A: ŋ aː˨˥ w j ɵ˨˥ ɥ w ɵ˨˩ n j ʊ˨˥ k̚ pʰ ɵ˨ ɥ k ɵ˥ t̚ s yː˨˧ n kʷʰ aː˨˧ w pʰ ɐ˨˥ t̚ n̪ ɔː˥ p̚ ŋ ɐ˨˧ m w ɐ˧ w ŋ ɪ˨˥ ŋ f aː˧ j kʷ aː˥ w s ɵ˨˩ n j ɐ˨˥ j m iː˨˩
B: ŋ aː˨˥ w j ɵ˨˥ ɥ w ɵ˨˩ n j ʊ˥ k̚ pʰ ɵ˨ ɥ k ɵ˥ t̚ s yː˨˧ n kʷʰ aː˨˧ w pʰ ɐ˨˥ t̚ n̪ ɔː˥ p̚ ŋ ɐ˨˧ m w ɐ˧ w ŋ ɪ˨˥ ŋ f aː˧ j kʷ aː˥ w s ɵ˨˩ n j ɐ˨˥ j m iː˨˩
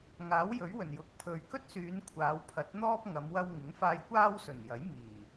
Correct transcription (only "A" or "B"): A